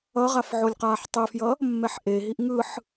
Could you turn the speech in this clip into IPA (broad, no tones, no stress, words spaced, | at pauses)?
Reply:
ʌʁaf ʕolʲqaːħtˤefjʌ | mːɛħʔeɦiʔ ŋɯħ